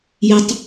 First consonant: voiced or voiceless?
voiced